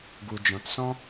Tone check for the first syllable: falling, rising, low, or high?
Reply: low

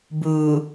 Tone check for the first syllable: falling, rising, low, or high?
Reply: low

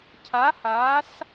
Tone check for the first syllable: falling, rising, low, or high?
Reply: rising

